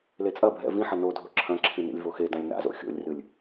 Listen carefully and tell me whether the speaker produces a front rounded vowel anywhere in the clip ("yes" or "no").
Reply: no